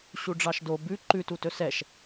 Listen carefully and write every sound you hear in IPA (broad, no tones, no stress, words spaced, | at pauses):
ɕuɖ͡ʐɑʃdo bʉ ǃʉtu tɵsɛʃ